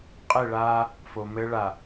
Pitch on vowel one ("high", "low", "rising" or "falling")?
falling